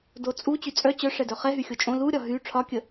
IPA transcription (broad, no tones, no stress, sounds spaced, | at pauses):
d o t͡sʼ u t͡ɕ y t͡sʼ œ t͡ɕ œ ʂ ɛ d œ χ ɛ ɦ y xʲ o t͡ʃʼ õ l u ɾʲ ɒ ɦ y ʈ͡ʂʰ ɒ kʲ ə